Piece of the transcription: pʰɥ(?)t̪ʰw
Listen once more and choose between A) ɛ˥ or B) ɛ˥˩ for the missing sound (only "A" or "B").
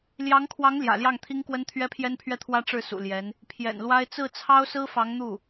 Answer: B